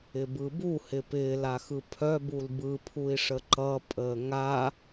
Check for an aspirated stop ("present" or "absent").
present